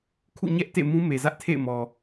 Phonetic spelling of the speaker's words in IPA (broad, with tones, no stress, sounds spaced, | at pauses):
kʰ ṵ˦˨ ɲ ɛ˦ ʔ t ḛ˦˨ m ũ˦ m e˨ z ä˦ ʔ tʰ ḛ˦˨ ɪ̯ m ɔ˨